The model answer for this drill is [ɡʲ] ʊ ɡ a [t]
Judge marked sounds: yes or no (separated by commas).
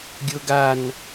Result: yes, no